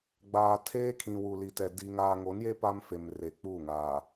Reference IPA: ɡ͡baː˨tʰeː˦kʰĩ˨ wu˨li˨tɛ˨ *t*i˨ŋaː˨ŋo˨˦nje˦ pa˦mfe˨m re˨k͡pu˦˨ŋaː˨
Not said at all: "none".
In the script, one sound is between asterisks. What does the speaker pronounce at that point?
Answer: d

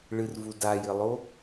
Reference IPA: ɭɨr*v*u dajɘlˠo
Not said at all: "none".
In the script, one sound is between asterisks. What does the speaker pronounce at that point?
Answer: v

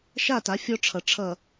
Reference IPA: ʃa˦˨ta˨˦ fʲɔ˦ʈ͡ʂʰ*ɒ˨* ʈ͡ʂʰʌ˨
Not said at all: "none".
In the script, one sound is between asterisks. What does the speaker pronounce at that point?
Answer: ʌ˨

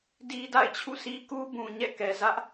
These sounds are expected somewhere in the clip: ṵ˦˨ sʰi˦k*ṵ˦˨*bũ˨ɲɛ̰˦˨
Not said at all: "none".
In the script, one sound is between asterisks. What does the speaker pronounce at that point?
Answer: u˦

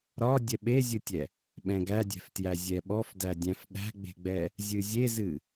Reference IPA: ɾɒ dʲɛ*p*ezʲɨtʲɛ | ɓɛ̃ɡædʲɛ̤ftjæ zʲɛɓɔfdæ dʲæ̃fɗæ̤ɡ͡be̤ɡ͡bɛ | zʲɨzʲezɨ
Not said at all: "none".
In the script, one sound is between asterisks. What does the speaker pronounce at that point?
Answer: ɓ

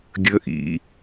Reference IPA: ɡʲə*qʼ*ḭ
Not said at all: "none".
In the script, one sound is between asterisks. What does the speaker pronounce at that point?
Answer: ʔ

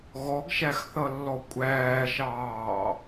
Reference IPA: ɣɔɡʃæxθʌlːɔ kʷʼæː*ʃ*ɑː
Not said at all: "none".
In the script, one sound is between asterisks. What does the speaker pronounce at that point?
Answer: ʃ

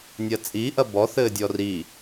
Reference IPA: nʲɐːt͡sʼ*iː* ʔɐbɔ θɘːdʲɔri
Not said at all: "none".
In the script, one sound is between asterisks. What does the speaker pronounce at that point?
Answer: iː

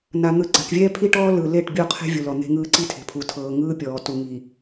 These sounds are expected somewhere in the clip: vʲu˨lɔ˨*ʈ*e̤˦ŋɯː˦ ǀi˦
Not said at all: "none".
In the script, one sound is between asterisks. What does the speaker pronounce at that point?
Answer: n̪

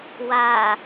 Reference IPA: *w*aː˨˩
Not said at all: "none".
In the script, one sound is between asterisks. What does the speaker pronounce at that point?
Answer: w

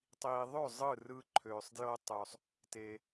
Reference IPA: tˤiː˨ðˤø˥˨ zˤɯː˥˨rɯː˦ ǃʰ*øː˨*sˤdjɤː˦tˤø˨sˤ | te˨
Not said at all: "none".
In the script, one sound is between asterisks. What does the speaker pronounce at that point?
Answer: øː˨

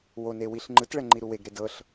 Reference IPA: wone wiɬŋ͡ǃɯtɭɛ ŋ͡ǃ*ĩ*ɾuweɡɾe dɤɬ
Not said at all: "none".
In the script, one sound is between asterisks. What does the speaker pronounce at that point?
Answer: i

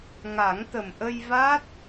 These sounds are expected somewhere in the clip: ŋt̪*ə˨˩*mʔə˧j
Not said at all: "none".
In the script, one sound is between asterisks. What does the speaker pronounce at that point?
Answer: ə˨˩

